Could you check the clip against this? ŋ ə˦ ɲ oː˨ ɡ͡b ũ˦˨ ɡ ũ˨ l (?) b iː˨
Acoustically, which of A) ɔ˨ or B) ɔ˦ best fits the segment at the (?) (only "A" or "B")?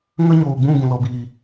A